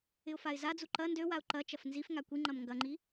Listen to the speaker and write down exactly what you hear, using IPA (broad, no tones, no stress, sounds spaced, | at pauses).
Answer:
ɪ ʊ̯ f a ɪ̯ z a d͡z u ǃ ɐ n d ø w a ʊ̯ ǃ ɐ t͡ʃ ɐ f n z i f ŋ a kʷ i ŋ͡ǃ ɐ m ŋ ɡ ɐ ŋ͡ǃ i